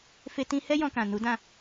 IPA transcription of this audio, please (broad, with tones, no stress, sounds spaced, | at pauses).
f e˧ t ĩ˧ h ɛ˦ j ɔ̃˧ k ã˨ n u˨˦ d ã˦˨